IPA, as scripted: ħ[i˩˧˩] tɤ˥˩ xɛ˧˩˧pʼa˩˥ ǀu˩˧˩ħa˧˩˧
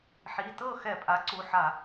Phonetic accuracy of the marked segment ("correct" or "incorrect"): correct